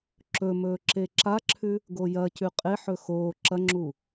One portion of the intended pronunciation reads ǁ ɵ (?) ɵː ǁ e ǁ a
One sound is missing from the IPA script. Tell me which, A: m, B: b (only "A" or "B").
A